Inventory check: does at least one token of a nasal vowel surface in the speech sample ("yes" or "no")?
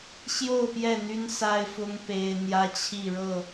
no